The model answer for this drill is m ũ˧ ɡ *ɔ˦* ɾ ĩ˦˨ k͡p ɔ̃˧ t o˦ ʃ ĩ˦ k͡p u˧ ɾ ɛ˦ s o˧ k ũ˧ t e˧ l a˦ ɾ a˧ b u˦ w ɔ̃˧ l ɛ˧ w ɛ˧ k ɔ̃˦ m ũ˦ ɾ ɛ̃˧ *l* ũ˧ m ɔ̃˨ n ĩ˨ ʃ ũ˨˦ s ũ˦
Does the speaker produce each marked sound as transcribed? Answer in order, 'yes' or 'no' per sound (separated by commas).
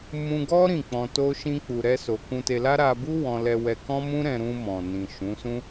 yes, no